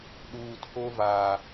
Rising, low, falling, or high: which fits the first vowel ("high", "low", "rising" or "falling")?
low